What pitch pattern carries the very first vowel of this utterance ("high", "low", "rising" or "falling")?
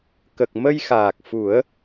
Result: low